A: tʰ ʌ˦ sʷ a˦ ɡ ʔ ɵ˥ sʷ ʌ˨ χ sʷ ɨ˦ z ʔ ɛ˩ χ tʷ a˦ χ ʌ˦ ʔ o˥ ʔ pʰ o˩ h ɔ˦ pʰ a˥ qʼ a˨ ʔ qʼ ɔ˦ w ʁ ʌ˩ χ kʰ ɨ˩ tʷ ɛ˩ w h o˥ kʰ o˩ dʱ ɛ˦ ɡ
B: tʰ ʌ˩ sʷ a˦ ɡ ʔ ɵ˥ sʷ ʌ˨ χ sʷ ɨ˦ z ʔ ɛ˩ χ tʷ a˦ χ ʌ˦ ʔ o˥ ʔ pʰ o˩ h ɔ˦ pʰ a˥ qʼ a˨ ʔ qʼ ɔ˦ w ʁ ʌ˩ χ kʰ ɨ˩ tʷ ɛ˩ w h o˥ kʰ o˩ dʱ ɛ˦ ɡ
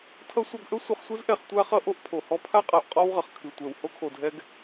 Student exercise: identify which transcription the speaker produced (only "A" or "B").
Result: A